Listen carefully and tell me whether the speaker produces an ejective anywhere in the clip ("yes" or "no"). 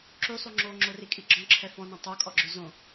yes